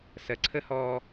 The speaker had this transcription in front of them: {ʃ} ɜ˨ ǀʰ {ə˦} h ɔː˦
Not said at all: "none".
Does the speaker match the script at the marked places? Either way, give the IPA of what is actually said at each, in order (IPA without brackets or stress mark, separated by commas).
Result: s, ə˦